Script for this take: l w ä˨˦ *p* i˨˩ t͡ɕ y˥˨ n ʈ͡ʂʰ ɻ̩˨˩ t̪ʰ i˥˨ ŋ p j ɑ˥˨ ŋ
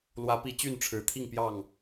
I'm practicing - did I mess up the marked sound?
no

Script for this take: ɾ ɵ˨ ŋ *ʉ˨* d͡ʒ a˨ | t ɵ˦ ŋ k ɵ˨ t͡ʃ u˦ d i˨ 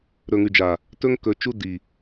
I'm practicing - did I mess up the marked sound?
no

